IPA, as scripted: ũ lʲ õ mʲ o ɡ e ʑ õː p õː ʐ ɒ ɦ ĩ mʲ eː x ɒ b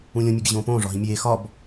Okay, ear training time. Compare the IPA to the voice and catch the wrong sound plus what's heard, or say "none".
none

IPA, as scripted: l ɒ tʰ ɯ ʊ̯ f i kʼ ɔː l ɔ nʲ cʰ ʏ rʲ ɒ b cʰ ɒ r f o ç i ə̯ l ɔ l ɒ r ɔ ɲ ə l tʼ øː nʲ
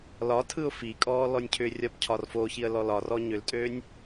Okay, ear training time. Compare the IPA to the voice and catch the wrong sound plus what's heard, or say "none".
ə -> ʏ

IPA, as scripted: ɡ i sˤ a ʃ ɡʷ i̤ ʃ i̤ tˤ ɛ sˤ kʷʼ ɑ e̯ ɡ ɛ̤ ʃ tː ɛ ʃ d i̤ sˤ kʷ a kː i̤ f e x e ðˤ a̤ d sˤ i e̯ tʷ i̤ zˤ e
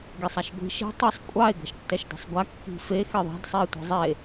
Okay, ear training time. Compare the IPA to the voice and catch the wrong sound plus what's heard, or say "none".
kʷ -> ɡʷ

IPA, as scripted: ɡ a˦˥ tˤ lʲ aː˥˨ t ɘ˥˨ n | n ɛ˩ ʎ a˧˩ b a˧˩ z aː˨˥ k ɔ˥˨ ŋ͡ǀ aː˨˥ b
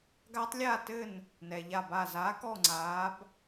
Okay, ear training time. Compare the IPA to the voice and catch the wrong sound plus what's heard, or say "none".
none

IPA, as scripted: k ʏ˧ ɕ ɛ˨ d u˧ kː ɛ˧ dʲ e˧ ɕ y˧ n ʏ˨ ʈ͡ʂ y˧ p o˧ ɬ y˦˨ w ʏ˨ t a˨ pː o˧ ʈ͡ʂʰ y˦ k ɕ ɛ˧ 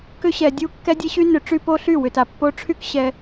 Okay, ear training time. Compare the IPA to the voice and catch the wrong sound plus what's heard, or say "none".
d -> dʲ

